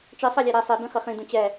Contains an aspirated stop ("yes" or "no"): no